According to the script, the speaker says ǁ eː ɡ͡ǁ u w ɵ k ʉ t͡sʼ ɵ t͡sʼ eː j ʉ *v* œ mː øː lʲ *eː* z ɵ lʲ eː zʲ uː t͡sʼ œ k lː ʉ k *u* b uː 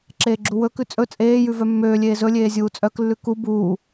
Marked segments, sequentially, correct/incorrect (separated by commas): correct, correct, correct